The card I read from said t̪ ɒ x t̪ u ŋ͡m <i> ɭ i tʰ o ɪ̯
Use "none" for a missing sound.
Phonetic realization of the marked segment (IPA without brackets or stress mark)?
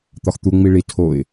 i